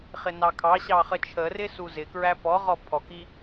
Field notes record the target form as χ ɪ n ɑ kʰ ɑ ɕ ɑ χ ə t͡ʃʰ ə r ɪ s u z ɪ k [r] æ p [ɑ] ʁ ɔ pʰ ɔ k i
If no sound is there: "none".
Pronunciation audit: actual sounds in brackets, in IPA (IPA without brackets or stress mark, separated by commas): ɹ, ɔ